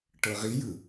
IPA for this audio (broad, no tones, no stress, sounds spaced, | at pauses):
ʈ ɤ ʁ i j ɯ